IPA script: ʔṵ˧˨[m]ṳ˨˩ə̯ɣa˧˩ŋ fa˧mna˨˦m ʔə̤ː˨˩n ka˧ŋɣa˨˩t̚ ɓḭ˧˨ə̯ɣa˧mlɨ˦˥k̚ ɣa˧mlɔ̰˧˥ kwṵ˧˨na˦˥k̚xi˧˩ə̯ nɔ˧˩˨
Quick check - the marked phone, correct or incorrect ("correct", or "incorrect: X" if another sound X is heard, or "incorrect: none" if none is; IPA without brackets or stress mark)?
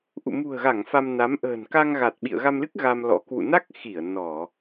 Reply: correct